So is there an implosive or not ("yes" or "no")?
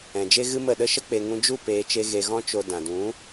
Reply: yes